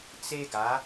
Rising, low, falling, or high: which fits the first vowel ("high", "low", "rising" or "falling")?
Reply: high